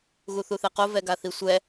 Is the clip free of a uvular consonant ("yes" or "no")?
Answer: no